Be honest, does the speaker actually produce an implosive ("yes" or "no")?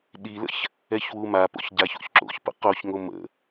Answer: yes